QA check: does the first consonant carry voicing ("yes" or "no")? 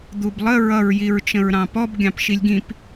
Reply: yes